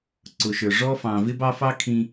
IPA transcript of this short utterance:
ǀʊ˨ʃə˞˨ ʐɔ˦fɑ̃˨ vɪ˦bɑ˦fɑ˦ kʰĩ˦

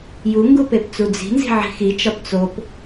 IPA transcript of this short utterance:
juŋɡu pept͡sud͡zi̤nzi̤ ʕi̤xit͡ʃɒp t͡sop

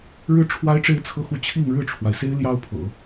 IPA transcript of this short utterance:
ɻɻ̩˥ ʈ͡ʂʰwa˥ɪ̯ʈ͡ʂe˥˧ɪ̯ t͡sʰɤ˥˧xu˥˧ t͡ɕʰi˥˧ŋ ɻɻ̩˥˩ʈ͡ʂʰwa˩ɪ̯se˥ɪ̯ ljɑ˥ʊ̯pʰɤ̰˨˩˦

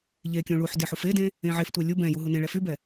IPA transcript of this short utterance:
ʎekʲũ ɭuħdeħ ufedẽ | ẽʕeftʷɛ lʲu bɛ̃ju ɦunẽɭɛ fybɛ

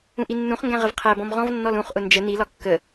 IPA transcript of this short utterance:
ũʔinːũχŋɡæ̃ ʁəvqʰæbɔ̃m ʁɔ̃vnːɔl ũχʔʊ nd͡ʒə nilɒ kːə

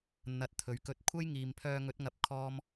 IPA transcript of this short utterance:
n̪ɐ˨˥t̚t̪ʰɵ˨ɥkɵ˧t̚ kʷʰɐ˥jŋiː˨mpʰœː˧ ŋɵ˨˥t̚ŋɐ˨˥p̚ kʰɔː˥m

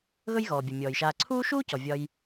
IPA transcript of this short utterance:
ɣɵ˥jɣɔː˩bʲɵ˩ mʲɔː˩jʃaː˨ǀʰuː˥ ʃuː˥cɔ˩ vʲɒ˨j

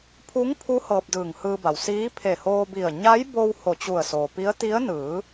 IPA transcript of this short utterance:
pʰu˧˥ŋpʰu˧˥ hɤː˧p̚dɯː˧˩ŋhɯː˧ba˩w siː˧˥pʰe˧˩hoː˧bi˧˩ə̯ ɲa˧˥jbo˧w ho˧˩t͡ɕu˧˩ə̯soː˩pi˧˥ə̯ t̪i˧˥ə̯ nɯː˩˧

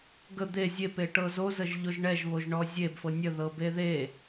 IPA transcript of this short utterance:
ɡə d̪e zʲepeʈɤ zozəʒʎoʒ ɳɛʒβoʒɳɔ zʲebfɤ nʲəðɤbe ðe

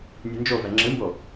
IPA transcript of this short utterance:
nʲɨnd͡ʒovɛ ŋ͡ǁɨmbo

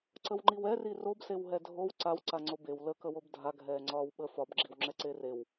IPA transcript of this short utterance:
ǀəwŋ͡ǃiwɛ rirobsew ɦɛdʱow ǀawǀaŋ͡ǀo bew ləkə wobdʱa ɡʱɛːŋ͡ǀɒːwɓə fɒbɡ͡ǁiwŋ͡ǁɛǀe rew

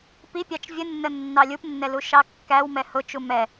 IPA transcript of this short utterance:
pipʲɑt͡ʃ vʲənːə nːɑlʲupnːɛlu ʃɑkːæwmɛ hʊt͡ʃu mɛ

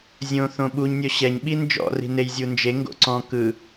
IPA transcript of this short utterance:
zʲõ θõɓuɲ nʲɔɕɛɲɓi nd͡ʒɔ̰ri̤nej zʲund͡ʒe ŋɡo̰ǀɔ̃ kɯ

